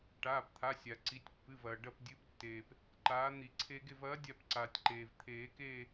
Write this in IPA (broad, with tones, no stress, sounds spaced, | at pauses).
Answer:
ʈ aː˩˧˩ p t̪ʰ a˩˧˩ sʲ a˩ ǀ i˩˧˩ tʲ pː ɨ˩˧˩ v ɐː˩ ɖ ɐ˦˨ p dʲ ɨ˨˥ p tː eː˩ p | ǃ aː˨˥ n̪ i˨˩˦ ǀʰ e˦˥ ɡ e˦˨ v ɐː˨˥ dʲ a˦˨ p ǀ aː˩ tʲ ǃ eː˩ v t̪ʰ eː˨˩˦ k eː˦˨